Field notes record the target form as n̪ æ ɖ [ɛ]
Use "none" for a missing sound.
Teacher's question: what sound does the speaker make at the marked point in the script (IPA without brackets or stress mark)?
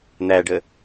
ə